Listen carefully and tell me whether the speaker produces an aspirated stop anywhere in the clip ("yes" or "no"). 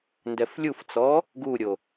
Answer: no